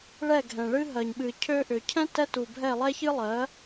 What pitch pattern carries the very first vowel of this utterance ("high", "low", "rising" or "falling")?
falling